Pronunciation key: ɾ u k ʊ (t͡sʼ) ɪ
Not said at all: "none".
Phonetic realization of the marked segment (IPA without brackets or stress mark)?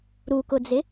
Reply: d͡z